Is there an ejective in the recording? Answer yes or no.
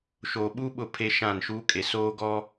yes